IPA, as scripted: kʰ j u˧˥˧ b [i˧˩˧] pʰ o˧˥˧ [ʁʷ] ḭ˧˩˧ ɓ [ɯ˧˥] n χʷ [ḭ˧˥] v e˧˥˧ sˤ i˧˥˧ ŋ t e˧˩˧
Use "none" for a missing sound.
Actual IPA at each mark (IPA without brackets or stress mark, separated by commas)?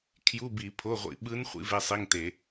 i˧˩˧, ʁʷ, ɯ˧˥, ḭ˧˥